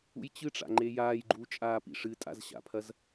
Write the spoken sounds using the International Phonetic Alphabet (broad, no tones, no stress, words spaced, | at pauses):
ṵjt͡ɕɨʈ͡ʂa̰ ŋ͡ǃejaːjɡ͡ǃuː t͡ʃʼaːpḭʂɨtʼa̰z ɕa̰pʰɐz